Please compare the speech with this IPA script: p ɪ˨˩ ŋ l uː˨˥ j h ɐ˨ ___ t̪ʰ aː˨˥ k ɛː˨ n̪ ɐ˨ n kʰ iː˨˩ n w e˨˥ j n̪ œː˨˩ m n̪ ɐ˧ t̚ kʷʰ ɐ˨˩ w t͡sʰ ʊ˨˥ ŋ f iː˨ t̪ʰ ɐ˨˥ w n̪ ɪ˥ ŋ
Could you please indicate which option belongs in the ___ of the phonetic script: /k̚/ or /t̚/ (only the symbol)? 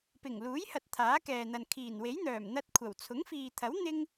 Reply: t̚